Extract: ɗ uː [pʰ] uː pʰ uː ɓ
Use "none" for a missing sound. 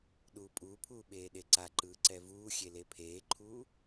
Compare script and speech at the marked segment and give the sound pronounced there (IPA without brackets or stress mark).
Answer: pʼ